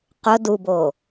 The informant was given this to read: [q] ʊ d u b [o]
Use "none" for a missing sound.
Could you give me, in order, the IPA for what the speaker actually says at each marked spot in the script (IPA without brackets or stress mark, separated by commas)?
q, o